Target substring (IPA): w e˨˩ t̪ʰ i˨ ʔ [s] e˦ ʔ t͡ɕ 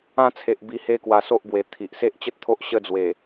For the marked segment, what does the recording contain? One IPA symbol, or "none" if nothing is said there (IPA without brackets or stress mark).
s